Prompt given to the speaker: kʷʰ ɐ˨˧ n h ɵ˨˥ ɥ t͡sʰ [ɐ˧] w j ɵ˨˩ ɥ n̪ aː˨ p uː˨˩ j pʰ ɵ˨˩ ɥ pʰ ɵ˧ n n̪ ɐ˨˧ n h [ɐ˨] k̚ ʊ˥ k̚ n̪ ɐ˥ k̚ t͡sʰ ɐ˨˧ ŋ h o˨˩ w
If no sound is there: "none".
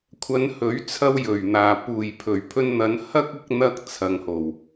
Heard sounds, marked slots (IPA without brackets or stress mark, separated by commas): ɐ˧, ɐ˥